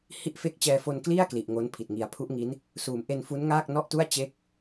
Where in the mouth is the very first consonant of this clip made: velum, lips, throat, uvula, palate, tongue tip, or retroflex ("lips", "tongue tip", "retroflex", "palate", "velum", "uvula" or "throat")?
throat